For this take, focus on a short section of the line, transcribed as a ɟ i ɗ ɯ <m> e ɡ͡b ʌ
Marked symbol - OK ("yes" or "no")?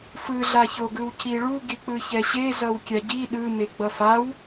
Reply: yes